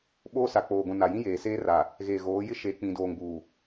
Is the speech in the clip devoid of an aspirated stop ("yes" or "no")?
yes